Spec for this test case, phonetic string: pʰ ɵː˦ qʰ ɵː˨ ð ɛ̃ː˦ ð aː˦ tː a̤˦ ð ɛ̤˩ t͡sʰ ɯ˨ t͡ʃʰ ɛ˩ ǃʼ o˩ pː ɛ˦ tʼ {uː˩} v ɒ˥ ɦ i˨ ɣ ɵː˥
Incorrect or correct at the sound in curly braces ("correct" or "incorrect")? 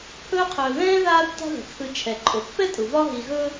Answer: incorrect